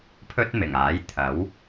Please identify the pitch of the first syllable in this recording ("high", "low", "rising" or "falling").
high